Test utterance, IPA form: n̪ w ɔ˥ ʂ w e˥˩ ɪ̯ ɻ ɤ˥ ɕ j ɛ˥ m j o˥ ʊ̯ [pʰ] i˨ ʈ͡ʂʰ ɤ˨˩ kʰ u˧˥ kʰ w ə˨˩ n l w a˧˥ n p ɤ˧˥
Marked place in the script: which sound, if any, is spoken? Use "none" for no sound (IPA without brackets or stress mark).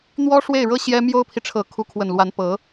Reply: pʰ